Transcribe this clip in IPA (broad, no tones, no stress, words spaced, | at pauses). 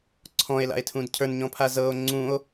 ǀʰɔ̃e̯la̰e̯tʰũd cʰə˞nɲɔ̃pʰa zɤo̯ ŋ͡ǀũo̯